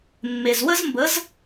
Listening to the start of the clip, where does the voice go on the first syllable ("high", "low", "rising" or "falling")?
low